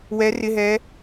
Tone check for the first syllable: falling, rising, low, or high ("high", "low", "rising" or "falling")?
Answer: rising